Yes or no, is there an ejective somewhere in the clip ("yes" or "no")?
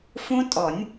yes